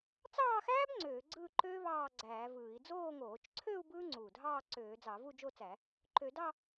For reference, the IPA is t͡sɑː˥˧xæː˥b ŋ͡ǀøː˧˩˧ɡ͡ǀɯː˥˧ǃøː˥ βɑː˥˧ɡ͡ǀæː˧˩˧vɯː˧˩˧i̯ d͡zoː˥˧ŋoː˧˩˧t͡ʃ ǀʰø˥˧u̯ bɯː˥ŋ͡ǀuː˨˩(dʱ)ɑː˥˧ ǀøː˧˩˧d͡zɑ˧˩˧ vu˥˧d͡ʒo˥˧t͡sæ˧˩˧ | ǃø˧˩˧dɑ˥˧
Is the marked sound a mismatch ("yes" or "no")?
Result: no